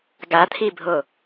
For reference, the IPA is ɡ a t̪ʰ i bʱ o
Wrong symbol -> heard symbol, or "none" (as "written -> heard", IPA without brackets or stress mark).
none